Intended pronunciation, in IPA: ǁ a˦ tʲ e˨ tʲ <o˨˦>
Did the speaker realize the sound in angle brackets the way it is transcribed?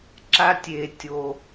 no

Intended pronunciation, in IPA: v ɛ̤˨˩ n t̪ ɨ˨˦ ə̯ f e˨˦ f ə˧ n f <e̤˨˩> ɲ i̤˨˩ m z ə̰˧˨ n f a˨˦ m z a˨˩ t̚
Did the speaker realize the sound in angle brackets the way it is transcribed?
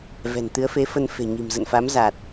yes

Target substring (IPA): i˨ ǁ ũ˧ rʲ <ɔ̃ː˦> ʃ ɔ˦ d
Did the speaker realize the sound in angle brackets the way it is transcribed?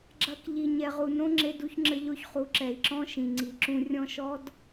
no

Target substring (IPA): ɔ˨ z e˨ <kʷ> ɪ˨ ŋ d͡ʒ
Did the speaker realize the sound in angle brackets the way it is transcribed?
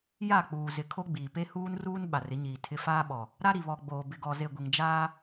no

